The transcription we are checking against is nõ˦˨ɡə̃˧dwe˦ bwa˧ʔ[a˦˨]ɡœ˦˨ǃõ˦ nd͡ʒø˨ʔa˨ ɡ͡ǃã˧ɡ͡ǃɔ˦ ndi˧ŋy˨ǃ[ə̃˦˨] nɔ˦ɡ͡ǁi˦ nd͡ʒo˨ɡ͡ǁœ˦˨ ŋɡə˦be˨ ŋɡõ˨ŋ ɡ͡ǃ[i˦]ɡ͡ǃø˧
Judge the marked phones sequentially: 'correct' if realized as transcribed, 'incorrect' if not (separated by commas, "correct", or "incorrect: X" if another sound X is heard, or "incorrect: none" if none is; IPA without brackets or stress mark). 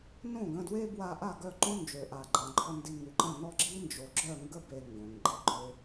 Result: correct, correct, correct